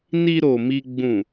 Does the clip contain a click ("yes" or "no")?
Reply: no